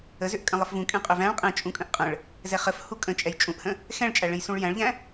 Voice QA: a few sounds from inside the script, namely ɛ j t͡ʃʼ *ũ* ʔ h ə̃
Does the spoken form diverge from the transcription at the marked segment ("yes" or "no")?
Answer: no